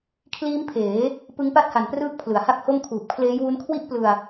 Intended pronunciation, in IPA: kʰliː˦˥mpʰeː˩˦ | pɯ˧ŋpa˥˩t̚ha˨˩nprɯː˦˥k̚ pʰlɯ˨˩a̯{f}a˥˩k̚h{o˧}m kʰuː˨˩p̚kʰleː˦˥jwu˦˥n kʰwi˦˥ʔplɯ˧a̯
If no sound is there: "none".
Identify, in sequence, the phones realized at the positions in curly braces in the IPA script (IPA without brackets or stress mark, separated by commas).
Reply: h, o˥˩